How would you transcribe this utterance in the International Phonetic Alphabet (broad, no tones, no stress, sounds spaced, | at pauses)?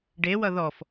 ɖ e w ʌ ð ɔ f